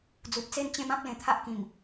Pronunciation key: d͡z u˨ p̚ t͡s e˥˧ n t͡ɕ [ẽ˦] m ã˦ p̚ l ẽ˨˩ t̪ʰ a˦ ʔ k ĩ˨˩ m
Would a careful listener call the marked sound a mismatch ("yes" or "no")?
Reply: no